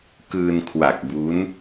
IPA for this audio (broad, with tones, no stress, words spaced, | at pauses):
kɯː˧nkʰwa˨˩k̚bu˦˥n